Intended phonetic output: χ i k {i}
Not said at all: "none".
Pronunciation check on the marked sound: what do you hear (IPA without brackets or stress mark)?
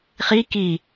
i